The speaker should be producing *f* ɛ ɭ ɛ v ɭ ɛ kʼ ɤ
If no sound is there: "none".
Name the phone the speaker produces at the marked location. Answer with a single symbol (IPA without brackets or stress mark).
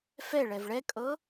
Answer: f